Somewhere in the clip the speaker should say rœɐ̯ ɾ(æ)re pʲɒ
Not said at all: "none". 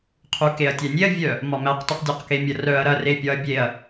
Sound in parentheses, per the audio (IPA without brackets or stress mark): ɐ